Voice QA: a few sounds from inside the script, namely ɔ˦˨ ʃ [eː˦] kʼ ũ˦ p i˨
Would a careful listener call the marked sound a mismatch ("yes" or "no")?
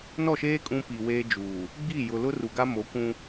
no